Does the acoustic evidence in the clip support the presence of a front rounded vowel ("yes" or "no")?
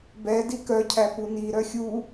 yes